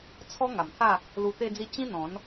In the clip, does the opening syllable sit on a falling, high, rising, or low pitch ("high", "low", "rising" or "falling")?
high